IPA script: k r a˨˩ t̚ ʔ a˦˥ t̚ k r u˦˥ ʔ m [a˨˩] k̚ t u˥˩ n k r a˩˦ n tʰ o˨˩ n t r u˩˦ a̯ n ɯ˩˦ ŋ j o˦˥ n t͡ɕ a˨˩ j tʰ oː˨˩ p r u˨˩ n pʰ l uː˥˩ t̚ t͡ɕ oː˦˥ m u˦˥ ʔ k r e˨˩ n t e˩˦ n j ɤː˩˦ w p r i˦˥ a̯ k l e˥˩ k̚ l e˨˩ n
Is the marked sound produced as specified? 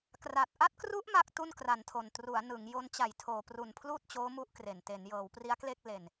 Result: no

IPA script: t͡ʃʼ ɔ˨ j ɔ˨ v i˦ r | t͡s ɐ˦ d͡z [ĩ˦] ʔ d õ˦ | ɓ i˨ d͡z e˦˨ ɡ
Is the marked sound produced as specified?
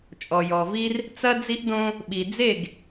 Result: no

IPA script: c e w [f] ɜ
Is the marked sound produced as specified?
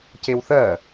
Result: no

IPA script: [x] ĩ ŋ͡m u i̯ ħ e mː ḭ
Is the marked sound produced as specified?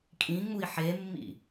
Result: no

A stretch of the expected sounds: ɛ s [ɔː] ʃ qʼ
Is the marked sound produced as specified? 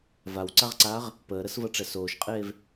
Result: no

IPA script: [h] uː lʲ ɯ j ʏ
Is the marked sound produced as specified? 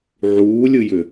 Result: no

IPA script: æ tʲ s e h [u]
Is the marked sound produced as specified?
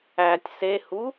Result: yes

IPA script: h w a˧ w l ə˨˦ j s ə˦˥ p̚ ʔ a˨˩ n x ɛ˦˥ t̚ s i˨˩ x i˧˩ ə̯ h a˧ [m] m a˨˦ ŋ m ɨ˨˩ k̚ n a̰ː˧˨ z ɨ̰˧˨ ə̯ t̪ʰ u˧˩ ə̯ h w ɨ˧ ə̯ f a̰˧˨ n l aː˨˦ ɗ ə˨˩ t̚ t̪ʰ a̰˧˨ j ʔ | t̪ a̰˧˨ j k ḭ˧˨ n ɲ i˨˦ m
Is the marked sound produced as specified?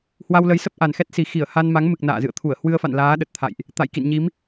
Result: no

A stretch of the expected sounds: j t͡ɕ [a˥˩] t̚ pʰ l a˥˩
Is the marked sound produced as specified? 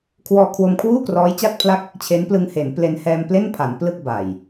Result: yes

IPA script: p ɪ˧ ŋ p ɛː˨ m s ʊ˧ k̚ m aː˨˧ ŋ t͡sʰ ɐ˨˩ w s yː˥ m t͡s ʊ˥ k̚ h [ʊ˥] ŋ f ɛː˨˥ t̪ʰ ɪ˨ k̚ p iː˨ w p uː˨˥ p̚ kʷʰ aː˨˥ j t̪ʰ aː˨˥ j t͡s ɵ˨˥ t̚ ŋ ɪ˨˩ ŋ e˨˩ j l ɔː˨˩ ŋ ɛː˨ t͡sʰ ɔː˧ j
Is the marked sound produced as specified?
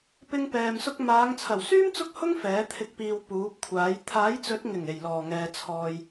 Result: yes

